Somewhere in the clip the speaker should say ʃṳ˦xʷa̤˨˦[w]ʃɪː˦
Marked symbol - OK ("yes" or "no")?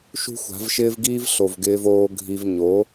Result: no